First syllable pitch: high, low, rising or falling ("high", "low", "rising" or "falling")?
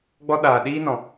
high